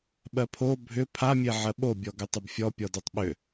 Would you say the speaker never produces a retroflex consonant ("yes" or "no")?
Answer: yes